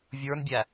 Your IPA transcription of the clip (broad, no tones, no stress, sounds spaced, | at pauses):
vʲ ə˞ n bʲ æ